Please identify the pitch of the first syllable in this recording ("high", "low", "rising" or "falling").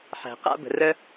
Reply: low